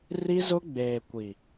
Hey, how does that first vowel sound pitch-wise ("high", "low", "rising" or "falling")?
high